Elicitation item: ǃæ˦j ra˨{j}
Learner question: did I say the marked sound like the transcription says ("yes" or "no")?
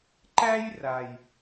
yes